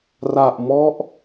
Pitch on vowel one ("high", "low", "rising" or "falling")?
low